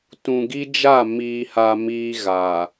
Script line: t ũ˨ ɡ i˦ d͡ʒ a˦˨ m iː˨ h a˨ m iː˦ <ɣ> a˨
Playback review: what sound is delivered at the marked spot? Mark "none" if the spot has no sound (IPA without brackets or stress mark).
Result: ɣ